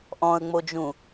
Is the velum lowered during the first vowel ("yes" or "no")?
yes